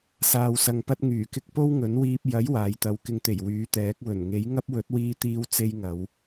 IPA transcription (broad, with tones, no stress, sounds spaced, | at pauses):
s aː˨ w s ɐ˨ ŋ p ɐ˧ t̚ ŋ yː˨˩ k ɪ˧ k̚ p o˥ w ŋ ɵ˨˥ n w iː˧ p̚ j ɐ˨˥ j w aː˨ j t̪ ɐ˨˧ w k ɪ˨ ŋ t̪ e˨˩ j w yː˨˥ t̪ ɛː˨˥ k̚ w ɵ˨˩ n ŋ e˨˥ j ŋ ɐ˥ p̚ w ɵ˨˥ t̚ w iː˧ t̪ iː˧ w t͡s e˧ j ŋ ɐ˨˧ w